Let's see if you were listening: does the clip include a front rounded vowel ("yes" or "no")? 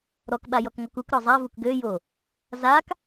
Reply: yes